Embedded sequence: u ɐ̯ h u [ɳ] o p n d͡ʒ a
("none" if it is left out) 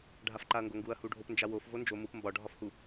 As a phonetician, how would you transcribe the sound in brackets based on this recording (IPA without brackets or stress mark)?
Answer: ɖʱ